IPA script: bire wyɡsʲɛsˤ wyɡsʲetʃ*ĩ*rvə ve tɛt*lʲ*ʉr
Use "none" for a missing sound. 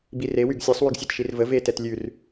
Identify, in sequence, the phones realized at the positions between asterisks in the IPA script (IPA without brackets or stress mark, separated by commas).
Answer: i, lʲ